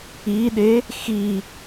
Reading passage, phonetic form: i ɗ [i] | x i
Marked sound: incorrect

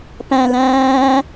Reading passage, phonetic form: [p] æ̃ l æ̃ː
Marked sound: correct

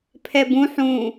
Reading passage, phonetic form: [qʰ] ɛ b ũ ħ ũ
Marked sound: incorrect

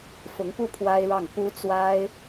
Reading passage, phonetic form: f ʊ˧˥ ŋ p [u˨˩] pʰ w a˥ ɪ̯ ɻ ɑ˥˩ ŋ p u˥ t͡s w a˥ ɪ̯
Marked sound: incorrect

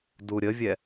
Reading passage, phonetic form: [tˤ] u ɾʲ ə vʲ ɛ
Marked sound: incorrect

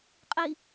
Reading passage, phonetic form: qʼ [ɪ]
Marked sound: incorrect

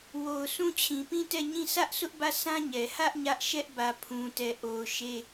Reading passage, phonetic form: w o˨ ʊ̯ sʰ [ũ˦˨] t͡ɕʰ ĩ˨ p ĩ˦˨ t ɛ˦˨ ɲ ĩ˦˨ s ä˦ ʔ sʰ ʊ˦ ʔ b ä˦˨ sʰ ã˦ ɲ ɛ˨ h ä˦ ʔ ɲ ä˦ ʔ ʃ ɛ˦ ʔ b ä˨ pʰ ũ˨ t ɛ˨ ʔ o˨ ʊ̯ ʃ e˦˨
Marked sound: correct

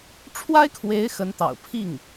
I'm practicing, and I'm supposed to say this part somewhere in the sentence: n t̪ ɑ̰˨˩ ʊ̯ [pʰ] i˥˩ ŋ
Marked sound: correct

